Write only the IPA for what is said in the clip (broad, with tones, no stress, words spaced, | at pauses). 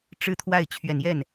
ʈ͡ʂɻ̩˥˧t̪ʰwa˥˩ɪ̯ t͡ɕʰɥɛ˨˩njɛ˥˩n